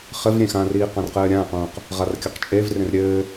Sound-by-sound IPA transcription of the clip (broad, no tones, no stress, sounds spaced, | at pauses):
χ ɘ v ɾʲ ẽ x ã r iː q ã r q ɘː ɾʲ ãː q ũː q | ʁ a r kʲ ɐ q t͡ʃʼ e v r ẽ r ɾʲ ɘː